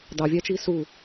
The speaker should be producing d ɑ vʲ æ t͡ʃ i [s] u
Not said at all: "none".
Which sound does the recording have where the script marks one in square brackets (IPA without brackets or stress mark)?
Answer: s